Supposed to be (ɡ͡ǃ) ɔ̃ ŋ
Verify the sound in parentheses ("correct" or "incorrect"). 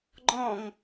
correct